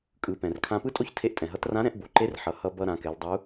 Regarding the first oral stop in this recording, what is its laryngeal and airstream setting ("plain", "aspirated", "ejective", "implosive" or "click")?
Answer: ejective